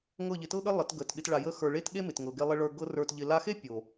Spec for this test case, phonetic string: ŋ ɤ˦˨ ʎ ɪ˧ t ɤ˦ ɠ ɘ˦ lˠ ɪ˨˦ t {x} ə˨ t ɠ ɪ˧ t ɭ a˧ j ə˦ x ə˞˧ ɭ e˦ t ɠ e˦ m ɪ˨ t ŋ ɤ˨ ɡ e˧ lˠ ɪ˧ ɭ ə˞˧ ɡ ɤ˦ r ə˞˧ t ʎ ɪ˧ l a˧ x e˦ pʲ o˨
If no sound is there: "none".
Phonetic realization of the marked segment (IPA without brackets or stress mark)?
ɡ